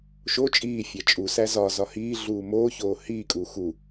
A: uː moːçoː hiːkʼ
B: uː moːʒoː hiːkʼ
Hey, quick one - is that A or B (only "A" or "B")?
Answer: A